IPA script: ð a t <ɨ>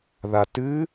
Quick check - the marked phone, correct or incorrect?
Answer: correct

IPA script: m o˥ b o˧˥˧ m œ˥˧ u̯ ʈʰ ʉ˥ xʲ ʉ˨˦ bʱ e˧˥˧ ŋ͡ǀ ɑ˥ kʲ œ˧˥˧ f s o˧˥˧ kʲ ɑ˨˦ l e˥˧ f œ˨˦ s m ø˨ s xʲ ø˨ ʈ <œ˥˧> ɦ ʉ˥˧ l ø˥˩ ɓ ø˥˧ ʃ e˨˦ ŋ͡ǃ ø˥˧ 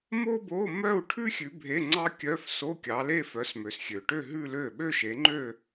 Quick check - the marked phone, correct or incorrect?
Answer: incorrect: ø˥˧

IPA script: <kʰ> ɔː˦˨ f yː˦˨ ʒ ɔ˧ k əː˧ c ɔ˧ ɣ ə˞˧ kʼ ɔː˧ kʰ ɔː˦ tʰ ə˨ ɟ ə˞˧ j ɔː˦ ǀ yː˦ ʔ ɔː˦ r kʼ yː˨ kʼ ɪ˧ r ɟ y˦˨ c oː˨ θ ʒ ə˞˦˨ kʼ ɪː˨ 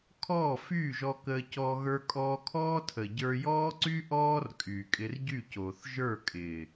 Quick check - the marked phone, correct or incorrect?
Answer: correct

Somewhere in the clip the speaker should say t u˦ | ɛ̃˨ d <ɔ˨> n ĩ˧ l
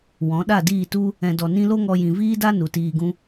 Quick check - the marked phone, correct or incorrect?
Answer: correct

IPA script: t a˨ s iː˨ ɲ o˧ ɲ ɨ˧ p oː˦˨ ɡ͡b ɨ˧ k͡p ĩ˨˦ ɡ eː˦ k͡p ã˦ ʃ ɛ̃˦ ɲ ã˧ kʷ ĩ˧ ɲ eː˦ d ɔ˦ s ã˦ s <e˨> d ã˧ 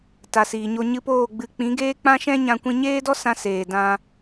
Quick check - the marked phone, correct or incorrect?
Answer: incorrect: eː˨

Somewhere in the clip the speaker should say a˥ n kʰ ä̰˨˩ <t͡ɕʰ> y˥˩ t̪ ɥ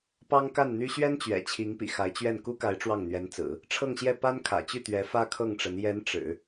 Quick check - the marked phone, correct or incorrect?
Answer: incorrect: t͡ɕ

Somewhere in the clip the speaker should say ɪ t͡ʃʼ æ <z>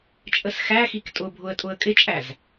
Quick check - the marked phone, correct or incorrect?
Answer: correct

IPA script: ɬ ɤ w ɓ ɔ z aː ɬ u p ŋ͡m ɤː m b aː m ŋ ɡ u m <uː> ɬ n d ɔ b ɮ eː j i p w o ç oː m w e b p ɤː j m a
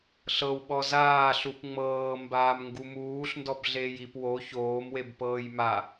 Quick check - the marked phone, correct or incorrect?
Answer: correct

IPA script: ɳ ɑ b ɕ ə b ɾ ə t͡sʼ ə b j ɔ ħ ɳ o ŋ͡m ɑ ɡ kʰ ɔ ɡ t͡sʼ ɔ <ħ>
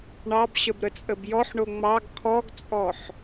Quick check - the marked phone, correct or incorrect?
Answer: correct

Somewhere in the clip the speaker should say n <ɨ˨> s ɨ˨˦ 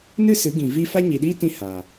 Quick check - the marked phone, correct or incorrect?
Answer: incorrect: ɨ˦˨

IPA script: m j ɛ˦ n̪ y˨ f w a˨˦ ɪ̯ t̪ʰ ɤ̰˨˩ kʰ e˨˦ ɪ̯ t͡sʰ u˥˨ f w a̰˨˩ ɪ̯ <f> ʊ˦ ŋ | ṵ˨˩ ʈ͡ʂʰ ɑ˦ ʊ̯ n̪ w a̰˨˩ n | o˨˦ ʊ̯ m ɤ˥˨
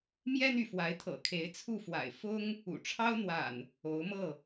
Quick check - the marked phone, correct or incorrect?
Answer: correct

